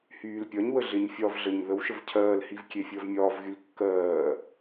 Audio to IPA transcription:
h yː l pʲ ɒ ɲ w ə ɮ ɪ ɲ fʲ ɒ v ɮ ə ɲ ð ə w ʃ ə v cʰ ɜː l h i v kʲ e fʲ əː v mʲ ɒː v ɣ y l kː ɜː

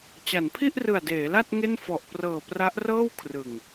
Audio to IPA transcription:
t͡ɕ a˩˦ n pʰ i˥˩ ʔ r ɯ˨˩ a̯ d eː˩˦ l a˥˩ t̚ ŋ e˥˩ n f ɔ˨˩ ʔ p r ɤː˨˩ p r a˦˥ ʔ r ɤː˥˩ w kʰ r ɯ˨˩ ŋ

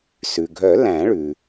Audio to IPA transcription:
s ʉ˩ ɡʱ œ˨˩˦ l æ̃˨˩˦ ɭ ʉ˩

